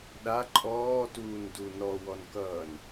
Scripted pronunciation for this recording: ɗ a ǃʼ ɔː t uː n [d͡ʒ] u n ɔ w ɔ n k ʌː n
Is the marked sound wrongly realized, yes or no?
yes